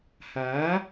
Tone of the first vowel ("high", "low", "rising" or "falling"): rising